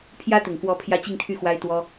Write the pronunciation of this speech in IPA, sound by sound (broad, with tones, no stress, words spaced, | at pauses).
pʰjä˥t̪ʊ˨˩ŋkwɔ˧˥ pʰjä˥t͡ɕi˥˧ŋt̪ʰy˥˩ xwa˥ɪ̯t̪wɔ˥